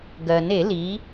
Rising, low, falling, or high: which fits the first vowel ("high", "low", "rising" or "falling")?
low